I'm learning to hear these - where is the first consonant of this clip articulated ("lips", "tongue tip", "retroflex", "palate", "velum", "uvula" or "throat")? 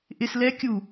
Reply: throat